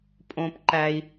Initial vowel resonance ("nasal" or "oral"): nasal